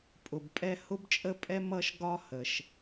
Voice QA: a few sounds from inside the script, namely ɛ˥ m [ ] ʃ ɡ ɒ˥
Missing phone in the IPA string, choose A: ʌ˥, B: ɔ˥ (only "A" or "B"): A